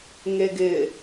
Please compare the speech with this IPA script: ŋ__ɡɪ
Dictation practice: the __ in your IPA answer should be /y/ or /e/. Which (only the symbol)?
e